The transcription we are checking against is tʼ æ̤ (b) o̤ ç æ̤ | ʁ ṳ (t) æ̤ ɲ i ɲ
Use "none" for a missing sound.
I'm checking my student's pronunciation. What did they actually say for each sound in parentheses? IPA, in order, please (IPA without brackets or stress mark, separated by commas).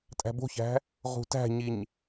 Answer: b, t